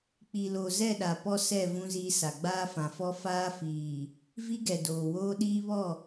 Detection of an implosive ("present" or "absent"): present